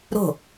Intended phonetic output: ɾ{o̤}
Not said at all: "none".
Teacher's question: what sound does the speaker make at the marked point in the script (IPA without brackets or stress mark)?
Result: o̤